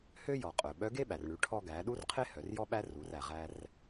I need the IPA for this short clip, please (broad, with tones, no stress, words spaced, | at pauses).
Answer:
hø˥ jɔ˩qʼœ˩ ɓœ˧˥ɡe˥ɓæ˩r ɳʉ˩˧ʈʰɔ˧ɡæ˩˧ ɗu˥rqʰe˥ hœ˩˧rjɔ˥ɓæ˥ ru˩˧ræ˩ ʁæ˧r